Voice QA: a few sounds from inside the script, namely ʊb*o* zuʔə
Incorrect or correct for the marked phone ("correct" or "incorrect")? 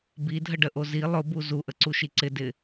incorrect